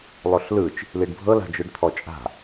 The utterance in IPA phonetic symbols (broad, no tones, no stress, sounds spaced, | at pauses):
lˠ o ɬ l ɯ t͡ʃ | l i ɖ bʱ ɤ l a̤ d͡ʒ ɯ ɖ t̪ʰ ɔ t͡ʃʼ a̤